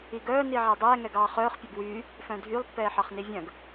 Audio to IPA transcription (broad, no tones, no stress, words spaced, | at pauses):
iɡœː niʕædˤɛː ŋɛɡɑːχœːχ pʲœbwyː | fœ̃dʱylˠpːɛː ħɑχnivʲœ̃ɡ